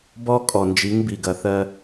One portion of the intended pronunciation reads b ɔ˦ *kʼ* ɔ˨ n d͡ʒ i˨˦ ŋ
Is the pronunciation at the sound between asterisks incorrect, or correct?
correct